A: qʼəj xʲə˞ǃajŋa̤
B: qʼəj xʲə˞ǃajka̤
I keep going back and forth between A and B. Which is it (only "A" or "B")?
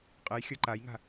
A